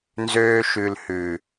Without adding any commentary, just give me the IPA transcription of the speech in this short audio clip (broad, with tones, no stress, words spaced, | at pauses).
nzøː˧ʃʉ˨lhʉ˨